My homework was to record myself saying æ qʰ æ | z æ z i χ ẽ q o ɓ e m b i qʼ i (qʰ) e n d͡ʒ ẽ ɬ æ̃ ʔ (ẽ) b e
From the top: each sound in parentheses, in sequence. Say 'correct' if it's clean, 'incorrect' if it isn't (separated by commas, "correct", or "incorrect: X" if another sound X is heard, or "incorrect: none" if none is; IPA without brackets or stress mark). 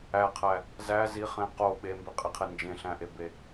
correct, incorrect: e